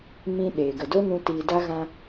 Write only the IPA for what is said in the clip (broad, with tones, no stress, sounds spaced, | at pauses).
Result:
m ĩ˦ ɗ eː˨ ɡ ə˨ d o˦ n ũ˧ t iː˧ d a˦ ɣ ã˧